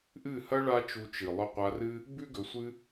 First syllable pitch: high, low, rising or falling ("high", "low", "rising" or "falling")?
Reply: falling